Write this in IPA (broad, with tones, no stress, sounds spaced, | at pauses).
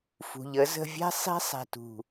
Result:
f ṳ˨ ʎ ə˨˦ z ə̤˧ vʲ ɛ̤˦ sˤ i̤˦ sˤ ɛ̤˨ t ṳ˨